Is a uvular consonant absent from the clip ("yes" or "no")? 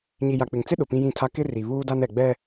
yes